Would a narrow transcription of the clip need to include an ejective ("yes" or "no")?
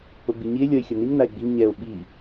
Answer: no